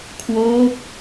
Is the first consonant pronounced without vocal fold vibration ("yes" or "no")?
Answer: yes